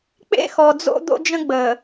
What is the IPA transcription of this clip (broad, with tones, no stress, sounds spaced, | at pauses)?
k͡p ḛ˦ x ɔ˨ d͡z o̰˦ d̪ o̰˦ d͡ʒ ə̃˦ ɡ͡b ə˨